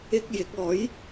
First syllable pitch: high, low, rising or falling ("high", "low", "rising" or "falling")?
high